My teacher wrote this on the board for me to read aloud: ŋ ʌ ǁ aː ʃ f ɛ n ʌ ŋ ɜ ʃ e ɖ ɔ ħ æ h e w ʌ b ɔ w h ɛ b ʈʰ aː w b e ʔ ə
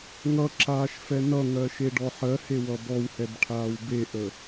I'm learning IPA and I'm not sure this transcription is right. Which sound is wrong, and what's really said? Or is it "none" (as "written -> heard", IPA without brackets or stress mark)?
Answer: æ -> ɜ